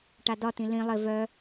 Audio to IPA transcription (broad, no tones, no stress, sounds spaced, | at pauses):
ʈ a d ɒ t ĩ l ĩ lˠ ɪ v œ